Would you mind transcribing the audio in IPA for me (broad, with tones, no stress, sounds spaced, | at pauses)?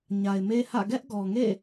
ɲ a˨ ɪ̯ m e˦ h ä̰˦˨ ɡ ɛ˦ ʔ ɡ ɔ˨ ŋ ḛ˦˨